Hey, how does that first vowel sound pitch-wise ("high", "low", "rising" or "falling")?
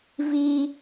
high